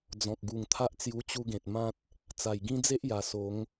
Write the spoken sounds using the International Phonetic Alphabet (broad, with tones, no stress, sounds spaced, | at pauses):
d͡z ɔ̃˨ k̚ ɡ u˨˩ ŋ t̪ʰ a˦ ʔ t͡s j u˧ t͡ɕ u˧ ɡ ẽ˨ t̚ m ã˦ t̚ | t͡s a˨˩ j ɡ ĩ˦ d͡z e˦ ʔ j a˨˩ s o˨˦ ŋ